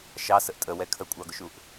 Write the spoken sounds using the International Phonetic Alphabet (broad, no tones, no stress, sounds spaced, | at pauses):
ʃ ɑ s ə ʔ tʼ ə w ɛ kʰ ə kʷʼ ɑ ɡ ʊ ʃ u ʔ